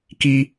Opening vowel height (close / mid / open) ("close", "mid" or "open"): close